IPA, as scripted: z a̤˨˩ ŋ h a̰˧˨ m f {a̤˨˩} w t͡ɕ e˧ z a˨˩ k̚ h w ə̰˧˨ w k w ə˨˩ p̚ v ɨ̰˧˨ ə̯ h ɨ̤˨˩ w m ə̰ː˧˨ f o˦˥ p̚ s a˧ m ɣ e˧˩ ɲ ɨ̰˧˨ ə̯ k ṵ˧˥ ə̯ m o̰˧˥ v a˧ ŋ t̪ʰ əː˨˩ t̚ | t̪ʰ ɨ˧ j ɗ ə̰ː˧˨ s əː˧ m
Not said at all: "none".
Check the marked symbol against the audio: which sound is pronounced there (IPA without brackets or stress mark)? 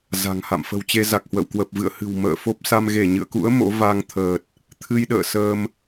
ə̤˨˩